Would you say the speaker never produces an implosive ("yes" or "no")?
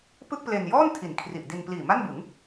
yes